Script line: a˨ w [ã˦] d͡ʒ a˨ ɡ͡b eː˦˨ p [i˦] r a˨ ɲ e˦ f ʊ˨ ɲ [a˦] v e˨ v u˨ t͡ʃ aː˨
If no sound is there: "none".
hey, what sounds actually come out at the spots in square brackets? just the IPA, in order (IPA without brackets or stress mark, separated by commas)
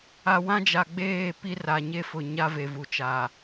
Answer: ã˦, i˦, a˦